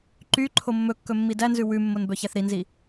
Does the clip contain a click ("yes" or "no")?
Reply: yes